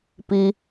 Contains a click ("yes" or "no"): no